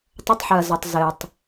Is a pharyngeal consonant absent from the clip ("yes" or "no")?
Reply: no